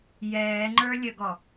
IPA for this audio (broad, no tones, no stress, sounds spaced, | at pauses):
j ɛː ŋ͡ǃ ə˞ lʲ ə ɡ ɔ